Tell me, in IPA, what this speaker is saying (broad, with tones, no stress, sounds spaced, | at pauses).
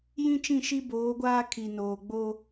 j ĩ˦ t͡ʃ ĩ˦˨ ʃ i˦ b oː˨˦ ɡʷ aː˦ kʰ i˨ n oː˨ ɡ͡b o˦